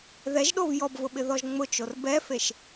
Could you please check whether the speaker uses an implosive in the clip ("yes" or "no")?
yes